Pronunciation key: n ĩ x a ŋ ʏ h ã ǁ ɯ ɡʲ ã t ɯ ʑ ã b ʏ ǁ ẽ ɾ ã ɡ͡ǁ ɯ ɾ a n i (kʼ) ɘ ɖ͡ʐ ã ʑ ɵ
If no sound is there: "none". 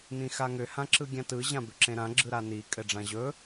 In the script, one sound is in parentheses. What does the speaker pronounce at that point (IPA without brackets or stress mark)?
kʼ